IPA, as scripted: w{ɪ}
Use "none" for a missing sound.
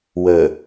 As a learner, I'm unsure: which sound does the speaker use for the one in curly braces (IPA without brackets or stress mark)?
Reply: ə